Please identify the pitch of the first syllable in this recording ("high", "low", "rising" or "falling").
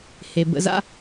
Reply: low